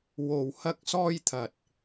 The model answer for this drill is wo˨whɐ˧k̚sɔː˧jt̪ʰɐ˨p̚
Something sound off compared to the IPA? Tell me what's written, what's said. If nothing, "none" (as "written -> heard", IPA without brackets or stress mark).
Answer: p̚ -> t̚